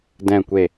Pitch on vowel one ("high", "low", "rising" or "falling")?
low